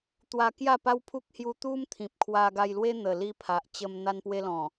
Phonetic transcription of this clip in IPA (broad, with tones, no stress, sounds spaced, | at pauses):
t̪ w a˧ k j a˥˧ p a˦ w pʰ u˦ k̚ h j u˧ t̪ u˦ m t̪ʰ ĩ˨ p̚ kʰ w a˧ ɡ a˧ j l w e˦ n̪ ə˨˩ l i˧ pʰ a˨ ʔ t͡ɕ ə˧ m n̪ a˧ n p w e˧ l ɔ̃˨˩